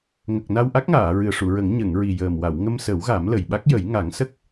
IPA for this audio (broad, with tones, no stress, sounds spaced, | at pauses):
ŋ ə˨˩ k̚ n a˧ w ʔ a˦˥ k̚ ŋ aː˨˩˨ ɹ ɨ˨˩ ə̯ ʂ u˨˩˨ ɹ ə˨˩˦ ŋ ɲ ə˨˩˨ ŋ ɹ i˨˩ j əː˨˩ m w a˨˩˨ w ŋ ə˧ m s ə˨˩˦ w ɣ a˨˩˦ m l ə˨˩ j ɓ a˦˥ k̚ j ə˨˩˦ j ŋ a˨˩˦ ŋ s ə˦˥ k̚